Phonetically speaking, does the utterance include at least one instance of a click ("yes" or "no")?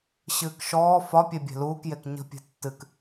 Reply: no